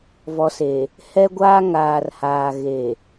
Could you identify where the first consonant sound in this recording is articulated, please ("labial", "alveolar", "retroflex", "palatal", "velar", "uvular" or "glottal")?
labial